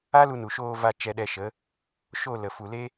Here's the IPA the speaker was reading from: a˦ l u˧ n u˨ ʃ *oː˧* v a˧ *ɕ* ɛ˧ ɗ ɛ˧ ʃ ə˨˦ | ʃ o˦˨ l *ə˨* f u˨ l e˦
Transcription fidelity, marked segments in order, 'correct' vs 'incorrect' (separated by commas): correct, incorrect, correct